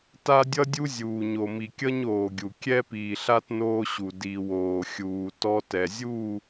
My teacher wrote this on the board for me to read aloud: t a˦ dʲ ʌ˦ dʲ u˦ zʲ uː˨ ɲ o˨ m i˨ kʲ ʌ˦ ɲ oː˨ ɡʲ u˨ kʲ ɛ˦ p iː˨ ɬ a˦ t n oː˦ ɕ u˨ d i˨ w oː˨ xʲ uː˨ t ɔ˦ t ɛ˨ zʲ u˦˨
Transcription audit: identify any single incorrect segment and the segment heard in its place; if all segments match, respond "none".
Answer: none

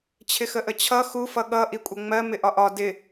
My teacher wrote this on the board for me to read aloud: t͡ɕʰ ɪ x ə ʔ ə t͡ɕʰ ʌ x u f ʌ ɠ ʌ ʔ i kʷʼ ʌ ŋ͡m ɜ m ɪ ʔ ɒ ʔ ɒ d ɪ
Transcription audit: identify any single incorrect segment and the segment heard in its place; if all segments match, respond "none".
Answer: none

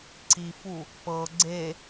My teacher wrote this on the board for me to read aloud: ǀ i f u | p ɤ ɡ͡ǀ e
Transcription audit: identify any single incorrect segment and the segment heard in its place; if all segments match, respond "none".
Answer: none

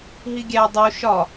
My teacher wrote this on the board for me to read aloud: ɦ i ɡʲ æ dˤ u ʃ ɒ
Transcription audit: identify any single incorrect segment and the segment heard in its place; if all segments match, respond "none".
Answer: none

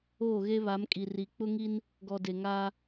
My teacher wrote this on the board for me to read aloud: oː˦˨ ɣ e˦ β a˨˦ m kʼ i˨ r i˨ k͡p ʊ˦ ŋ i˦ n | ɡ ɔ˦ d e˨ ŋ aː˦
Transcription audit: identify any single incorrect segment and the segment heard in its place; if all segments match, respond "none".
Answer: ɔ˦ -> ɔ˨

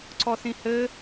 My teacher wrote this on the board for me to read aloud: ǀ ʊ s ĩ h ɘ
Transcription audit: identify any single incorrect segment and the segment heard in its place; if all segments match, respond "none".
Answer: ʊ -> ɔ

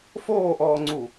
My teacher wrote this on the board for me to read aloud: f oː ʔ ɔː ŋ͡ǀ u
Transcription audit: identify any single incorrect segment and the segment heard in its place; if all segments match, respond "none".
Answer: none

